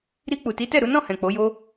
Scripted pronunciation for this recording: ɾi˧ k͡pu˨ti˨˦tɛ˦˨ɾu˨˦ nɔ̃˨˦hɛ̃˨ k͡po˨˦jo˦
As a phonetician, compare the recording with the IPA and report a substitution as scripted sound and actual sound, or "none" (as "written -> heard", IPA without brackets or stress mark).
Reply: ɔ̃˨˦ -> ɔ̃˦˨